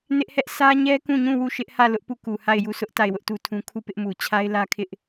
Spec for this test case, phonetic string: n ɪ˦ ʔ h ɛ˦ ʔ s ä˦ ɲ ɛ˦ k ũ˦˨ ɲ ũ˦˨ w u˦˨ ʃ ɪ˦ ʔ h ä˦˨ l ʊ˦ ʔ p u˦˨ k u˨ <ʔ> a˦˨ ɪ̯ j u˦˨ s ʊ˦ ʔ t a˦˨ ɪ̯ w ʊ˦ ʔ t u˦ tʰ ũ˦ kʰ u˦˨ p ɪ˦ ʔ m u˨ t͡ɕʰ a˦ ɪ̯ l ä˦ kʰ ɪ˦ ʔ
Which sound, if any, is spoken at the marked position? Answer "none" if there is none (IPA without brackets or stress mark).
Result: h